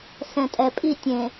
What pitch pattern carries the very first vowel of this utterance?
low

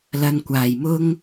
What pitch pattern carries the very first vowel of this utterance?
low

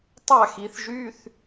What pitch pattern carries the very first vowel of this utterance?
falling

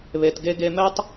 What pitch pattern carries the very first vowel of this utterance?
low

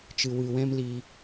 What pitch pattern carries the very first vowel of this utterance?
low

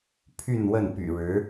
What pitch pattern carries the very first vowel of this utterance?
falling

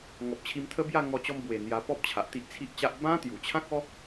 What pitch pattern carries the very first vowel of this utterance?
low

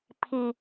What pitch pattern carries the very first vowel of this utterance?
high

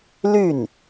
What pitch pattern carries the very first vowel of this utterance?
falling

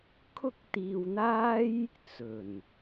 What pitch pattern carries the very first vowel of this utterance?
high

